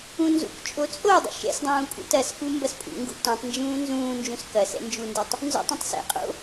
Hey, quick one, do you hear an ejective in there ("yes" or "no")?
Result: yes